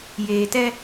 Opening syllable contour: low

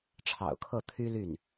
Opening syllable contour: low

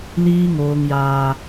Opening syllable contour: high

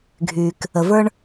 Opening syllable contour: low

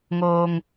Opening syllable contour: low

